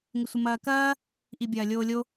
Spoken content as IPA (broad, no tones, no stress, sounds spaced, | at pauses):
ŋ ɪ sʷ ə m ɐː k ɐː | ʔ i bʲ ɐː lʲ oː lʲ o